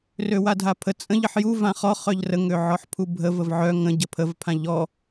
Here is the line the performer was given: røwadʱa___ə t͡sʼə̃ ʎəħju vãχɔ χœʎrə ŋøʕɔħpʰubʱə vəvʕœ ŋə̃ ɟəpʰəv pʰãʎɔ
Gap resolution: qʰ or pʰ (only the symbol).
pʰ